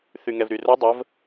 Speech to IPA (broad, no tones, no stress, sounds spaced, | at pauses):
θ y ŋ ɛ v ɾ y r o dˤ ə v